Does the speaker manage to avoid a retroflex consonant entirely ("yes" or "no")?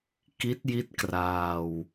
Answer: yes